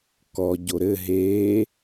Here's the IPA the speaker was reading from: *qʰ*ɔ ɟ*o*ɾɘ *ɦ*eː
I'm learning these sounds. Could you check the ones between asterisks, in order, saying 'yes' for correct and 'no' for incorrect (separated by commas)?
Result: no, yes, yes